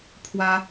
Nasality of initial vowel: oral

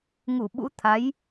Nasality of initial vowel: oral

